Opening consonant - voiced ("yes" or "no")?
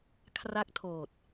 no